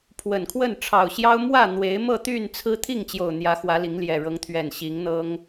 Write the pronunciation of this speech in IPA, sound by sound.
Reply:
pʰ w ə˨˩ n kʰ w ə˥˨ n ʈ͡ʂʰ ɑ˨˩ ʊ̯ ɕ j ɑ˦ ʊ̯ m w ä˥˨ n̪ w e˨˦ ɪ̯ m ɤ˥˨ t̪ y˥˨ n t͡sʰ ɹ̩˦ t̪ʰ i˥˨ ŋ t͡ɕ j o˨˩ ʊ̯ n̪ j ä˨˦ x w ä˨˦ l i˨˦ ŋ l j ɛ˨˩ ɻ ɤ˨˦ ŋ t̪ʰ ɥ ɛ˨˩ n ɕ i˨˦ ŋ n̪ ɤ˦ ŋ

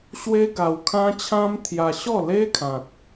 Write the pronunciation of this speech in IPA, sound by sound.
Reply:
ɕ w e˦ ɡ a˧ w kʰ ã˦ t͡ɕʰ ã˦ m t̪ʰ j a˧ ɕ ɔ˥˧ l e˦ kʰ ã˨ t̚

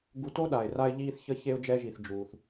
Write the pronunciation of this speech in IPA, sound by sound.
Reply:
ɡ u˧ t o˥ ɗ a˩ ɪ̯ r a˧ ɪ̯ ʎ iː˧ θ ç ə˧ ç e˧ ʊ̯ d͡ʒ ɛ˧ ʒ i˩ θ d͡ʒ uː˩ θ

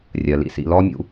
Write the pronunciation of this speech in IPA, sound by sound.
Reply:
rʲ ɜ˨ l ḭ˦˨ s ḭ˧ l ɔ˦ mʲ ṵ˧

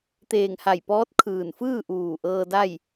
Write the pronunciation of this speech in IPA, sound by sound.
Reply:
t̪ eː˧˩ ŋ h a˧˩ j p ɔː˧˥ t̚ kʰ ɯː˧˩ n f ɯː˥˨ ʔ uː˧˩ ʔ ɤː˧ d a˥˨ j

